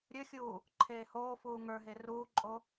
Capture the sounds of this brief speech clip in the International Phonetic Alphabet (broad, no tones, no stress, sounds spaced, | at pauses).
ɾʲ ɵ xʲ uː | ǃʰ eː h oː f uː ŋ ə˞ ɦ e r uː ǃʼ o